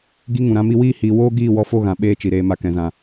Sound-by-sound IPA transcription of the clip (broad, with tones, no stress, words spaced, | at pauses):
ɡi˦ŋũ˨ɾã˦mi˦ wiː˦ hiː˨woː˦ ɡiː˦˨wɔ˧fo˦˨ɣã˨ ɓeː˦t͡ʃi˨ɾeː˧ ma˧kɛ̃˨zã˨